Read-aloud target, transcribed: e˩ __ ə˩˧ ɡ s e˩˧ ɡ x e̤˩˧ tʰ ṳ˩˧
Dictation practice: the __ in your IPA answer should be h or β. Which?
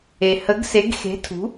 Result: h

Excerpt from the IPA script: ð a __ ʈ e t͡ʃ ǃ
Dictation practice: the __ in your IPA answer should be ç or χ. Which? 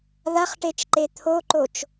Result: χ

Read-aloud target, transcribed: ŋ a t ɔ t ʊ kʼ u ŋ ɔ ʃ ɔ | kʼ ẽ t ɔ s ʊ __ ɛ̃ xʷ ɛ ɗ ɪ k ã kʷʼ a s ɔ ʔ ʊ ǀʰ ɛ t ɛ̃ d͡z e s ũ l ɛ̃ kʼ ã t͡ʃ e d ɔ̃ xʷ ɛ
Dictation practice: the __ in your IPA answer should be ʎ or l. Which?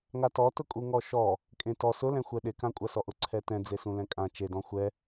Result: l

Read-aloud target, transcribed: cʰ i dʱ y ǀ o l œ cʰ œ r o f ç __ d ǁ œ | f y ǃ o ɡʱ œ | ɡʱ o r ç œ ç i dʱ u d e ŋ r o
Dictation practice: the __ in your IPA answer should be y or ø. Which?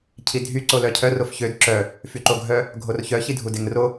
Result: ø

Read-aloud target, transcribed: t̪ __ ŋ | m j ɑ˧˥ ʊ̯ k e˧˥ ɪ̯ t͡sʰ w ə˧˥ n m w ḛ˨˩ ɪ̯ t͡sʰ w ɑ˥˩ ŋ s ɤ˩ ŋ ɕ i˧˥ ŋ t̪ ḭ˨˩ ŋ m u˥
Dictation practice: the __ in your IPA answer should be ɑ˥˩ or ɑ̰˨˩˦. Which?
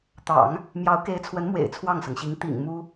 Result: ɑ̰˨˩˦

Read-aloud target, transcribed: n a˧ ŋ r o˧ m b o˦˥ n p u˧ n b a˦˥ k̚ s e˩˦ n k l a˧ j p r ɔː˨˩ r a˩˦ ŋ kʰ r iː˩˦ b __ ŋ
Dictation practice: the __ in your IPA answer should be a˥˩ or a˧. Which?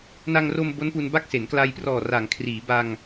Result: a˧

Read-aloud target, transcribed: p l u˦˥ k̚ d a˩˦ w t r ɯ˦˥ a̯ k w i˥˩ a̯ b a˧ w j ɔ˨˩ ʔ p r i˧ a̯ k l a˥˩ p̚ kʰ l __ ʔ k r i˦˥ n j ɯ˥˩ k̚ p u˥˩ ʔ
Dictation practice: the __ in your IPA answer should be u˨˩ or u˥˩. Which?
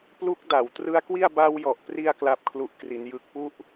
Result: u˥˩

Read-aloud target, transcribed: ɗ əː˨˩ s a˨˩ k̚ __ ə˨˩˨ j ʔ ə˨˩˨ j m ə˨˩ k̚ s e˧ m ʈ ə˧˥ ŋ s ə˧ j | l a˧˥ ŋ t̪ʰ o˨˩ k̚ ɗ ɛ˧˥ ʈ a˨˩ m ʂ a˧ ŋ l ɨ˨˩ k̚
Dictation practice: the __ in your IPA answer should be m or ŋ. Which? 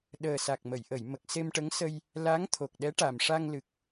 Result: m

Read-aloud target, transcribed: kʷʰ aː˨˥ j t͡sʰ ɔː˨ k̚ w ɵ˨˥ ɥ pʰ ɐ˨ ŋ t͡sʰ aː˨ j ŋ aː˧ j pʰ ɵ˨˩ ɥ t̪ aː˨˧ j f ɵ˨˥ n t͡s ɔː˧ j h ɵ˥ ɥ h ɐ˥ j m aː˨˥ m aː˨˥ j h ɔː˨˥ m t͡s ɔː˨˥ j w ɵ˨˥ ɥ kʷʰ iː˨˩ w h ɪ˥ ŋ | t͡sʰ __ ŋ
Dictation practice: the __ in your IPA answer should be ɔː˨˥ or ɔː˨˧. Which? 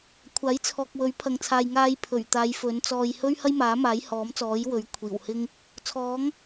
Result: ɔː˨˥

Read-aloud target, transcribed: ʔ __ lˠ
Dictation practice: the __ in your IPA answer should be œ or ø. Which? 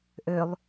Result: ø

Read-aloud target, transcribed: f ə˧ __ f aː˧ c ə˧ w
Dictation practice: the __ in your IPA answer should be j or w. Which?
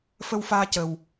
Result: w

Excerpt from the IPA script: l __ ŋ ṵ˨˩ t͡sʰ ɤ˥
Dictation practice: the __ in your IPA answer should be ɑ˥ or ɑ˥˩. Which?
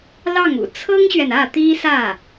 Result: ɑ˥˩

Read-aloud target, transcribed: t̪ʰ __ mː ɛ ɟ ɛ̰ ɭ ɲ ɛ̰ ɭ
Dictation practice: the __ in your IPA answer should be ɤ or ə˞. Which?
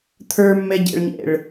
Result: ə˞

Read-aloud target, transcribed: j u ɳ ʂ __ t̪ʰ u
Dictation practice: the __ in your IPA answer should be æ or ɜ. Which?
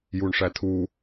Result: æ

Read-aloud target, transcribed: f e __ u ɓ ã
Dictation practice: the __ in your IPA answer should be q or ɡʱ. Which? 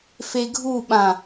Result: ɡʱ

